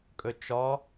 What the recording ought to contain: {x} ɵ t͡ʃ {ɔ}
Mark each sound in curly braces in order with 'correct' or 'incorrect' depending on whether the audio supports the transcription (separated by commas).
incorrect, correct